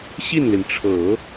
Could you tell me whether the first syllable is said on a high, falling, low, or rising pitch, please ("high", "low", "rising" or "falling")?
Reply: falling